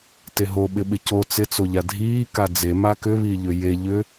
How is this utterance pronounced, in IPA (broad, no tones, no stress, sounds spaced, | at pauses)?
t e ɦ o ɓ ɪ ɓ ɪ c o t͡s ɪ t͡s o ʎ a dʱ iː k a d͡z e m a k ʏ β i ʎ ʏ j e ʎ ʏ